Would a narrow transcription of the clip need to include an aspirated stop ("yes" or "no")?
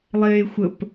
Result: no